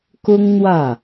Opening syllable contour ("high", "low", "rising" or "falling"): high